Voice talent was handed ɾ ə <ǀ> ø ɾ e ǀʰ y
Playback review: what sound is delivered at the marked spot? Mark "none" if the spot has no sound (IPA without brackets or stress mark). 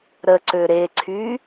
ǀ